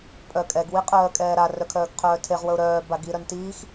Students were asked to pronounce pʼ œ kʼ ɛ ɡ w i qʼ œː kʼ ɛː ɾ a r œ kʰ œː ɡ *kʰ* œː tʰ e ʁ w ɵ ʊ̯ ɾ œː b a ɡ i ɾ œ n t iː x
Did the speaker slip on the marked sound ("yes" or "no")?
yes